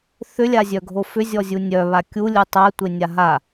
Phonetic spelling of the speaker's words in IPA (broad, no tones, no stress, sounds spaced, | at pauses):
θ ʏ lʲ a zʲ œ ɡʱ o f ʏ zʲ ɔ zʲ u nʲ œ β a kʲ u lʲ u tˤ a tʷ e nʲ a ɦ a